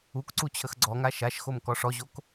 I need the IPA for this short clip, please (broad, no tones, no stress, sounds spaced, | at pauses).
u k ǀ u t͡ɕʰ ə x ɡ͡ǀ ɔ ŋ a ʃ a ʃ x o m k ɔ ʂ ɔ ʑ o k